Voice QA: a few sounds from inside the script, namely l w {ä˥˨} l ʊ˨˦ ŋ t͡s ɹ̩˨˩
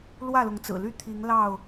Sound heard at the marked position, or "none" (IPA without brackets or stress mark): ä˥˨